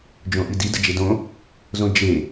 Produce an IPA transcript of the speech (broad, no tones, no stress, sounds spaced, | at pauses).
d͡ʒ õ ʔ i d i d ə d͡ʒ e d õ | z õ d͡ʒ e